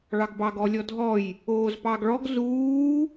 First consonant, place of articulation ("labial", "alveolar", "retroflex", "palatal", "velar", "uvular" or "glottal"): retroflex